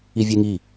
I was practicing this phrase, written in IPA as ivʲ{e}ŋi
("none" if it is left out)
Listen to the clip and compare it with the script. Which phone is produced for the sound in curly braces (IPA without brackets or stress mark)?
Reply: e